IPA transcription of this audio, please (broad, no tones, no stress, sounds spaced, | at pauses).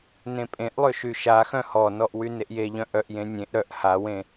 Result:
n ẽ pʼ ẽ ʔ lˠ ø ʃ y ʃ a x œ̃ h ɔ n ɔ ʔ w y n e ʔ j e ʎ œ̃ ʔ œ ʔ j ẽ nʲ ẽ ʔ ɾ œ ʔ h a w ẽ